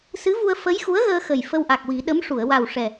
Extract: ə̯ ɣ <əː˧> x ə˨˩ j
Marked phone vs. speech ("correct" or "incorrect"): correct